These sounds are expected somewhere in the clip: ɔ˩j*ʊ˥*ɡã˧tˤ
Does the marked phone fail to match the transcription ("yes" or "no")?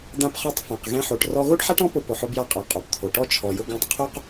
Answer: yes